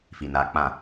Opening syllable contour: low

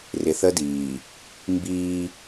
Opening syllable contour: low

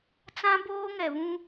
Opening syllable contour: high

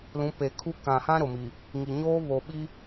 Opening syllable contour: rising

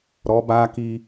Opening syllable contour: rising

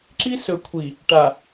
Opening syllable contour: high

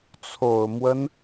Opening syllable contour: low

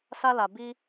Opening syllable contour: high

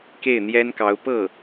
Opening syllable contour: falling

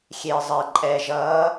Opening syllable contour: low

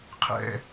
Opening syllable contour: high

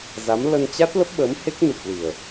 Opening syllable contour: rising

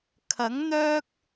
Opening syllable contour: rising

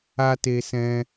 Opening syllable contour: high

